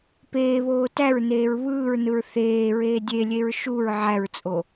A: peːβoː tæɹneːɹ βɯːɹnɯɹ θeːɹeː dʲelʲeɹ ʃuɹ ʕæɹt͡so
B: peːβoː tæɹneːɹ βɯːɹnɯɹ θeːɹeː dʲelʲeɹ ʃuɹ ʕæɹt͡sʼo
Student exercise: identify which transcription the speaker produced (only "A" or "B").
B